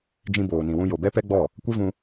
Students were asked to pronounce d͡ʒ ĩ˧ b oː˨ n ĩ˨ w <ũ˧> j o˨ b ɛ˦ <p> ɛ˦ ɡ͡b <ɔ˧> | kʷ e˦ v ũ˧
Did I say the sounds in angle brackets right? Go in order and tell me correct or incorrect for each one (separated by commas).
correct, correct, incorrect